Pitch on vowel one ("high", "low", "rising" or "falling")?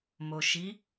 low